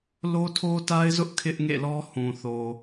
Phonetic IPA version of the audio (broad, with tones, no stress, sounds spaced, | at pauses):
l o˦ tʰ o˦ t a˦ ɪ̯ z ʊ˦ ʔ kʰ ɪ˦ ʔ ŋ ḛ˦˨ l ɔ˦ h ũ˨ θ o˨